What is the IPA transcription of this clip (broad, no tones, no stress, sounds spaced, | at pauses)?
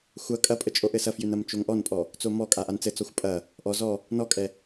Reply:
xʷ ɐ kʼ ɐ pʼ ə t͡ʃʼ o ʔ ɘ s ɐ f j ʉ n ɐ m t͡ʃ o ŋ ʔ ɔ n pʼ ɔ | t͡s o m ɔ kʼ a ʔ a n t͡s ɘ t͡s ɔ xʷ pʼ ɐ | ʔ ɔ z ɔ | n ɔ kʼ ɛ